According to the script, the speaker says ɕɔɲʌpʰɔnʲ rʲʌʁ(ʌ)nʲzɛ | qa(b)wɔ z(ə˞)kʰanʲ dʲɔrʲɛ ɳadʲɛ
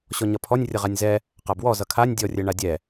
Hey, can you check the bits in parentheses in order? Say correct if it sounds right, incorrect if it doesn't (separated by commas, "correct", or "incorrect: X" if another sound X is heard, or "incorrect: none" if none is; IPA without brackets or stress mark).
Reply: incorrect: a, correct, incorrect: ʌ